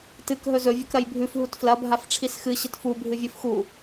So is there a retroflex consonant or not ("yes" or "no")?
yes